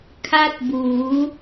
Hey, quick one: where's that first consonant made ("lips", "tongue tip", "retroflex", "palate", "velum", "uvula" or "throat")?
velum